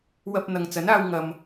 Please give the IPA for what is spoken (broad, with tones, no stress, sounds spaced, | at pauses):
w ɐ˧ p̚ n̪ ɐ˨ ŋ t͡s ɐ˨˥ n aː˧ w ŋ ɐ˨ m